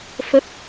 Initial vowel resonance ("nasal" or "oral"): oral